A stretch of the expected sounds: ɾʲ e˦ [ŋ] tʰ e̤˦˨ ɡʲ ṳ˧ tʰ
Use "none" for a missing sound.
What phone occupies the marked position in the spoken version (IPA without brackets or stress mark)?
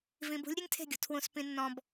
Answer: ŋ